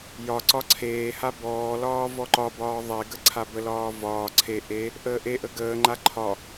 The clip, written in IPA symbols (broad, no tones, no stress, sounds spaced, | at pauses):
j ɒ ǀ ɒ ǀʰ eː h a b ɔː l ɒː v ɔ ǃ ɒ b ɒː ðˤ e ɡ ə ǀʰ a b ə l ɒː v ɒː ǀʰ e ʔ e | ʔ əː ʔ e ʔ ə ɡ əː ŋ͡ǃ a ǃʰ ɒ